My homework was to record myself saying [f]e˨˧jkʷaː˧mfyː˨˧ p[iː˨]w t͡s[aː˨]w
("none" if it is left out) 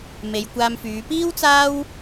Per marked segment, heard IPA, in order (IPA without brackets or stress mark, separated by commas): m, iː˥, aː˥